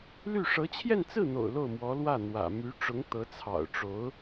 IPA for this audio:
l y˥˩ ʂ ɤ˧˥ t͡ɕʰ j ɛ˥˧ n t͡s ɹ̩˥˩ n̪ o̰˨˩ ʊ̯ l o˥˩ ʊ̯ m w ɔ˧˥ l w ä˥˩ n̪ w ä̰˨˩ m y˧˥ ʈ͡ʂ ʊ˧˥ ŋ t̪ ɤ˧˥ t͡sʰ ɑ̰˨˩ ʊ̯ ʈ͡ʂ o˧˥ ʊ̯

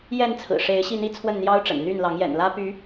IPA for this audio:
j ɛ˥˨ n t͡sʰ ɹ̩˨˩ ʂ e˨˦ ɪ̯ ɕ i˥˨ n̪ i˥˨ t͡sʰ w ə˥˨ n n̪ j ɑ˦ ʊ̯ ʈ͡ʂ ə̰˨˩ n n̪ y˥˨ n l ɑ˨˦ ŋ j ɛ̰˨˩ n l ä˦ p y˨˦

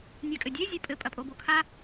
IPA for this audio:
nʲ a kʼ ɘ dʲ e zʲ ɘ pʼ ɘ pʼ ɐ pʼ o b o kʰ a

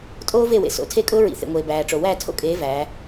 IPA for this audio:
tʼ oː˦ v e˦˨ w ḛ˨ s o̰˨ tʰ e˦˨ kʼ ʊː˦ ɹ ḭ˨ θ ḛ˨ ŋʷ eː˨ b æː˨ ʈ͡ʂ o˨ w æ˦˨ tʰ o̰˦ kʼ eː˨˦ v æː˨˦

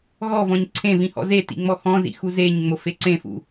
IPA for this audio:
ɣ ɔ v ɔ̃ ɲ ǀʰ ẽ v ĩ h ɔ̰ z e t ḭ ŋ͡m ɔ x ɔ̃ z ḭ x u z e ɲ ŋ͡m o f e ǀ ẽ f ṵ

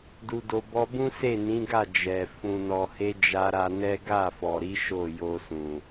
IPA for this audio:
d u˨ d o˨ b ɔ˧ b ũ˦ s e˦˨ n ĩ˨˦ ɡ a˦˨ d͡ʒ ɛ˨ f ũ˨ n ɔ˨ h e˧ d͡ʒ a˧ ɾ a˧ n ɛ˦ ɡ a˦˨ f ɔ˨ ɾ i˨˦ ʃ o˦˨ j o˧ s ũ˨

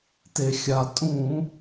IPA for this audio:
t e˩ xʲ a˩ tʼ ũ˧˩˧

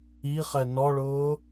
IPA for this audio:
i χ ɛ n ɔ ɭ ʊː

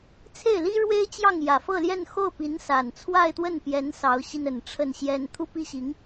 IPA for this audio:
t͡sʰ e˥˩ ɪ̯ l i˥ ɻ w e˥ ɪ̯ t͡ɕ j ɑ˥˩ ŋ j ä˨˩ f ɤ˥˧ l j ɛ˥˧ n x o˥˩ ʊ̯ p i˧˥ n s a˨˩ n t͡sʰ w a˥˧ ɪ̯ t̪ w ə˥˩ n p j ɛ˧˥ n s ɑ˧˥ ʊ̯ ɕ i˧ n ə˨˩ n ʈ͡ʂʰ ə˥˩ n ɕ j ɛ˥ n t̪ʰ u˥˧ p i˥˩ ɕ i˧˥ ŋ

